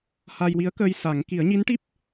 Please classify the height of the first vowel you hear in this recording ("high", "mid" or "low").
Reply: low